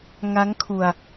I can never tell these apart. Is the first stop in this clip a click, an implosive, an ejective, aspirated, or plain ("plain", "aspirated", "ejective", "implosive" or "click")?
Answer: aspirated